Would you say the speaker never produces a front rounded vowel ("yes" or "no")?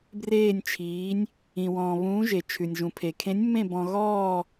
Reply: yes